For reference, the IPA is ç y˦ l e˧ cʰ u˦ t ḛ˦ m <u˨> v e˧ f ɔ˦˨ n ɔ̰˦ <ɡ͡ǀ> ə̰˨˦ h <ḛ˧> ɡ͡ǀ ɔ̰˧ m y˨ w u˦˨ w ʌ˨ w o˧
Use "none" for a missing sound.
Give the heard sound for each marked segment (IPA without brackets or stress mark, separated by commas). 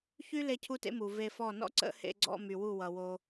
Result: u˨, ǀ, ḛ˧